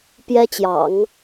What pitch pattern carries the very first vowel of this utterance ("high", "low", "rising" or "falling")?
high